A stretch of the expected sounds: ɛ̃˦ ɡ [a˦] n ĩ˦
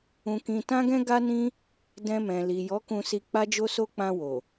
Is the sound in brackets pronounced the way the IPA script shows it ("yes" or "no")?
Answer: yes